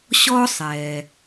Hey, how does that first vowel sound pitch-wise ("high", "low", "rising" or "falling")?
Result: high